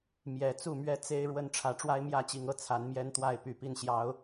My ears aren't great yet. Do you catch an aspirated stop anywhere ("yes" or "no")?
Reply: yes